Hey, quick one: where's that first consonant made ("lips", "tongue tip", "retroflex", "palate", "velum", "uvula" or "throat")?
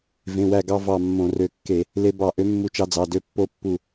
lips